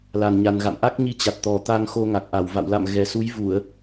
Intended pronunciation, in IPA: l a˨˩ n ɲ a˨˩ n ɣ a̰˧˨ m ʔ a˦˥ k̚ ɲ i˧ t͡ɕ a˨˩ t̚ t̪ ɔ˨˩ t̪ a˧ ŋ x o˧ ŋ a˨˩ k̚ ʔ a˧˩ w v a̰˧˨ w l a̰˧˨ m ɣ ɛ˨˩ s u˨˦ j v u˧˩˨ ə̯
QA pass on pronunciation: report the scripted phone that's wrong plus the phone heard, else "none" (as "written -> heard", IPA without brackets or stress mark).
none